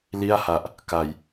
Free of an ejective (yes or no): yes